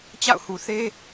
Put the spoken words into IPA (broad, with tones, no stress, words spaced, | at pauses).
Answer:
t͡ɕa̰˦˨ʊ̯hu˨θe˦